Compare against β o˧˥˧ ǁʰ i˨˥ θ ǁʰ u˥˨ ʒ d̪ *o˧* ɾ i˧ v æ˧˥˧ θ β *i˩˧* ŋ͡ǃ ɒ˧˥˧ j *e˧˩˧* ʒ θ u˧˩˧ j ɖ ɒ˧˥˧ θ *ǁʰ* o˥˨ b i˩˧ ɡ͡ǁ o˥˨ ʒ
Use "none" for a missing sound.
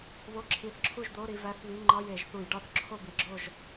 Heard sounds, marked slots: o˧˥˧, i˧˥˧, e˧˩˧, ǁʰ

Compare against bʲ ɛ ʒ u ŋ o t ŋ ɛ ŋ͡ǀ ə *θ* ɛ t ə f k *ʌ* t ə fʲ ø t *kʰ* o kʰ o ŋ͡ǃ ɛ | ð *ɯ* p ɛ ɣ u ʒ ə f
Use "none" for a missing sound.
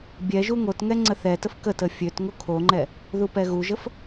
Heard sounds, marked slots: θ, ə, ŋ, u

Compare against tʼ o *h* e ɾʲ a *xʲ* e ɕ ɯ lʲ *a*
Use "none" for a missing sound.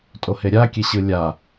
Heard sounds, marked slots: h, kʲ, a

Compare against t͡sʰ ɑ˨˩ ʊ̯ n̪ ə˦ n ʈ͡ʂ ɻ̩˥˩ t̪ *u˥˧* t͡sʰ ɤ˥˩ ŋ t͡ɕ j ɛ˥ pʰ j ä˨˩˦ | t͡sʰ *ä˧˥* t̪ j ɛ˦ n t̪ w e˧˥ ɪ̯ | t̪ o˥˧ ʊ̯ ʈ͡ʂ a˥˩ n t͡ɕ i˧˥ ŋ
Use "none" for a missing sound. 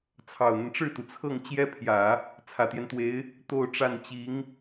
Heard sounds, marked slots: u˩, ä˨˩

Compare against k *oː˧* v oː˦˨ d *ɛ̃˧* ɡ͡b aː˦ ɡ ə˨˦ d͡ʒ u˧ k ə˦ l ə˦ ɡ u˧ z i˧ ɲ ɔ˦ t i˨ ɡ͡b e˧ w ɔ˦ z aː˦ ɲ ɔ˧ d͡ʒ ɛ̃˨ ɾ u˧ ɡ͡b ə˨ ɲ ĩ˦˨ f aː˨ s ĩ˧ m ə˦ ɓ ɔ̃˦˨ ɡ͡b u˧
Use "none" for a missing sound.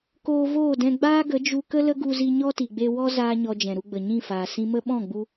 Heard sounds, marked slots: oː˧, ɛ̃˧

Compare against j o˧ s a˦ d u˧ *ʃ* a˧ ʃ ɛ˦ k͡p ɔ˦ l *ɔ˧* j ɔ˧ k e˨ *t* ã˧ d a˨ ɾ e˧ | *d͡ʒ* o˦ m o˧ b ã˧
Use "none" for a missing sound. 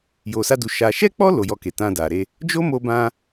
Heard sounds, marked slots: ʃ, o˧, t, d͡ʒ

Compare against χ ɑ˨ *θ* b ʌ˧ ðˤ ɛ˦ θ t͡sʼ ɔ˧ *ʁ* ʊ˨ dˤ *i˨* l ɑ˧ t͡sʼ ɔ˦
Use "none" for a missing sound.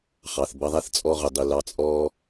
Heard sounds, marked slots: θ, ʁ, i˨

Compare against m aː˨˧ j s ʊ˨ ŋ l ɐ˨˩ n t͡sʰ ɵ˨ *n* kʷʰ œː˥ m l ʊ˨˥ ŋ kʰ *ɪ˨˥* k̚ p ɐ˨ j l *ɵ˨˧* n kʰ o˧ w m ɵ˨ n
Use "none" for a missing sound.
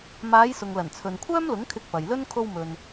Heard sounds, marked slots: n, ɪ˧, ɵ˥

